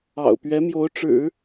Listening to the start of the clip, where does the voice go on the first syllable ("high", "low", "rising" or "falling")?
low